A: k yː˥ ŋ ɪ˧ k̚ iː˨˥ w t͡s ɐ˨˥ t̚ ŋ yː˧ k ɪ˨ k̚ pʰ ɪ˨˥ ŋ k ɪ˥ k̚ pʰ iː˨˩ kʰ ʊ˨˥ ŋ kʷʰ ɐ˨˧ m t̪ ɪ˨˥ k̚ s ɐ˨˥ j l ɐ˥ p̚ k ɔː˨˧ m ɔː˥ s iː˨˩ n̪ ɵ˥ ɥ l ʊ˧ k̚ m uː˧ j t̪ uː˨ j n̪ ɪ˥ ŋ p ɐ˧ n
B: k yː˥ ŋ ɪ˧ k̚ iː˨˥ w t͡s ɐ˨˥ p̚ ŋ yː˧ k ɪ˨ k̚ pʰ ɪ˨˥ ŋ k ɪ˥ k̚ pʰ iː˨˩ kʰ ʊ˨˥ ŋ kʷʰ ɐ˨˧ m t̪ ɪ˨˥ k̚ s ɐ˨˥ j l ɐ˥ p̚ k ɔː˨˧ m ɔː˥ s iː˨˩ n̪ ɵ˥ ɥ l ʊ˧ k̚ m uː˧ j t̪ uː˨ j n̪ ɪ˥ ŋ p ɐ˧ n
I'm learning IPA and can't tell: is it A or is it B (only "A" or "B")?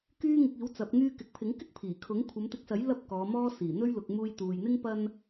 B